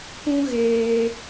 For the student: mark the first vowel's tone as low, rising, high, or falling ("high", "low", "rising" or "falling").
high